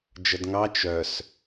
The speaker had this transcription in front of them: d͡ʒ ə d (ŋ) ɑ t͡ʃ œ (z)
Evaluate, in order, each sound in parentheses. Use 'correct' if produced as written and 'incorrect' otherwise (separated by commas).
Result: correct, incorrect